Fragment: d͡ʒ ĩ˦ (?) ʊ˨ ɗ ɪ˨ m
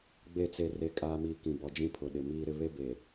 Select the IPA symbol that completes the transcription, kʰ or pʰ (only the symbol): pʰ